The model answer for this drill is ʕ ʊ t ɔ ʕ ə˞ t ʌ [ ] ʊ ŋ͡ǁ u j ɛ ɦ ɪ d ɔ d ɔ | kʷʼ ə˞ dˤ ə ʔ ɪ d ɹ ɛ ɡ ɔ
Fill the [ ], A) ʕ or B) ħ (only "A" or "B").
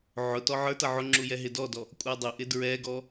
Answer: A